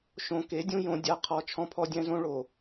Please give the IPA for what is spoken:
ʃ õ˨ k e˨˦ dʲ ũ˦ j õ˦ dʲ a˦ qʰ ɔ˦ t͡ʃʰ ɔ̃˦ pʰ ɔ˦ dʲ ɛ̃˦ z õ˦ ɭ o˨

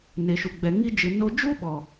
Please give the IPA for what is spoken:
n e˨ ʃ u˨ ɡ͡b ɛ˨ ŋ i˧ d͡ʒ ɨ˨ n o˧ d͡ʒ u˦ ɓ ɔ˨

